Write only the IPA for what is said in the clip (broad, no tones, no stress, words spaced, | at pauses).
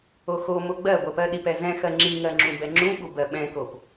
oxomo ɡ͡bɜ ɡʷɜpɜɗipɛ zɛ̃xɜ ŋ͡ǁiŋɜ ŋ͡ǁũbɛŋ͡ǁũɓu bɜɓɛ̃kop